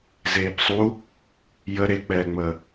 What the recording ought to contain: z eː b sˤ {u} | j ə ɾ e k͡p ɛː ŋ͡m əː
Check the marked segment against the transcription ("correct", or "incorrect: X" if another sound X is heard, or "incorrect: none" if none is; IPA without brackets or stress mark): correct